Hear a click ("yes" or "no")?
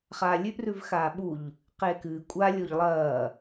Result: no